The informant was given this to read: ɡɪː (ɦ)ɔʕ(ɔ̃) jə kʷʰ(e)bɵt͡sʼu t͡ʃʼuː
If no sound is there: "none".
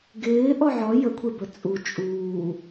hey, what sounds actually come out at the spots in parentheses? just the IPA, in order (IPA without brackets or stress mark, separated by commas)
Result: ʔ, ɔ, e